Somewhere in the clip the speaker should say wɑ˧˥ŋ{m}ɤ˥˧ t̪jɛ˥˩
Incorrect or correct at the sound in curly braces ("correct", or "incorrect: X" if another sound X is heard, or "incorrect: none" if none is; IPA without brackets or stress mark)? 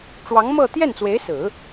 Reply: correct